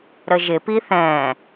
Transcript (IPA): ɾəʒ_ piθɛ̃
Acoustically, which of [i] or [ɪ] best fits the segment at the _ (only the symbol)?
ɪ